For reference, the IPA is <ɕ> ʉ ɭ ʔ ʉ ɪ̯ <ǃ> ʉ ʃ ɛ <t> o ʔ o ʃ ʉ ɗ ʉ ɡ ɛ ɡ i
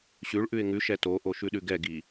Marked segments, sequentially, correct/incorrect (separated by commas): correct, incorrect, correct